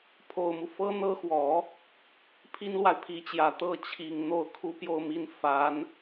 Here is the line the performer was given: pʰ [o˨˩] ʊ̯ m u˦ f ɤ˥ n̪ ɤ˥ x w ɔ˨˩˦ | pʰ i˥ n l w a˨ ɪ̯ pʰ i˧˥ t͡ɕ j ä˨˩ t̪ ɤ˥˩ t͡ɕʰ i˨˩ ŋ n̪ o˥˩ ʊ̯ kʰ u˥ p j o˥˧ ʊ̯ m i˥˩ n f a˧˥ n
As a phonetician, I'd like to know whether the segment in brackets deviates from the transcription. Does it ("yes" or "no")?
no